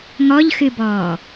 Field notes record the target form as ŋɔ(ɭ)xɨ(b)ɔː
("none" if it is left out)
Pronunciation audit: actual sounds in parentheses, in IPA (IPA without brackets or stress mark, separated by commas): ʎ, b